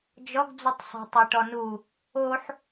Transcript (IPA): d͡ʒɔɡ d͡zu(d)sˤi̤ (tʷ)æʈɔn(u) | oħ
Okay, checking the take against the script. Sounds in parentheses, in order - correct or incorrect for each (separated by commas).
incorrect, incorrect, correct